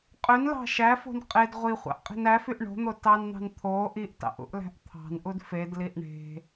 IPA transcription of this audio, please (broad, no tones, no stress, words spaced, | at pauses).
qʼønlɑ̤ ʃæfo̤n qʼed ʁʷiχʷɑ̰ʔ qʼi̤næfyʔ ɳo̤n̪o tɑnn̪ɑ̤n t̪ʰo ʔiʔtɑ̰ʔ ṵʔlæ̤ʔt̪ʰɑ̤nʔud fedliʔ ɳe̤